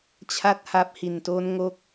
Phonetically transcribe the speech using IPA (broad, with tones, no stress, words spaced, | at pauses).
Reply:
t͡ɕʰa˥˩t̚ha˦˥p̚hi˨˩nto˦˥n ŋo˥˩k̚